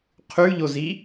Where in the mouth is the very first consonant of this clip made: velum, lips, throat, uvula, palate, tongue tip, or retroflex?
uvula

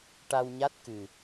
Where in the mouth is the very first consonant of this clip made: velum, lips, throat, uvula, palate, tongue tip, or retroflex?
retroflex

